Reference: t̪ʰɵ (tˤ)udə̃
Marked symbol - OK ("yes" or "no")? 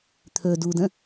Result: no